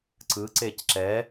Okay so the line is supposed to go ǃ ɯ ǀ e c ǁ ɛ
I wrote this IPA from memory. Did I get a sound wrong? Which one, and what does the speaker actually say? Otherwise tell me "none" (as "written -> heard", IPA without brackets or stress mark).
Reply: ǃ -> ǀ